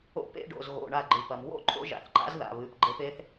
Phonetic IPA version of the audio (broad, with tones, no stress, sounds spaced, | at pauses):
o̰˧˥ p ḛ˧˥˧ ɖ o̰˩˧˩ z ɣ o̰˩˧˩ ɳ a˧˩ ɡ͡ǃ ɨ˩ p ɐ˩ m w o̰˥˨ ǃʼ o̰˧˥ ʒ a̰˩˧˩ θ ǃ a̰˧˥ z ð a̰˩˧˩ β ɨ˩˧˩ p ɡ͡ǃ e˧˥ p e˧˥ θ